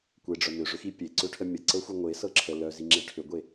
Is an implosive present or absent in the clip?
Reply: absent